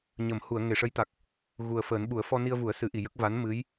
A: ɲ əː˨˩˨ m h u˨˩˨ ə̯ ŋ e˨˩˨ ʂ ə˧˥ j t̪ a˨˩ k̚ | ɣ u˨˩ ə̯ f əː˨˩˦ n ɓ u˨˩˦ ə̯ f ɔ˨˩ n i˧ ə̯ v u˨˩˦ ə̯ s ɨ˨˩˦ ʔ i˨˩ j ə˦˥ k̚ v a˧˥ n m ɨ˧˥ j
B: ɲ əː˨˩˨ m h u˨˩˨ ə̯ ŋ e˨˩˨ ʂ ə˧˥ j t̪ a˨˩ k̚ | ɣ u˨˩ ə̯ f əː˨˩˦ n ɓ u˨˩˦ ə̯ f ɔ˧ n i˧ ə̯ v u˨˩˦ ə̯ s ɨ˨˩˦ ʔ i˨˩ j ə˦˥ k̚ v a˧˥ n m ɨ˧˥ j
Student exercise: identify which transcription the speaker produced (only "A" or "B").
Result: B